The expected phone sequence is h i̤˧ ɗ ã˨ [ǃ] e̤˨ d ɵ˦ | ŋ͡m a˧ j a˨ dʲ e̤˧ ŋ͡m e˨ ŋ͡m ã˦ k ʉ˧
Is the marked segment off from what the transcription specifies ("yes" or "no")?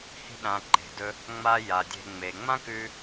no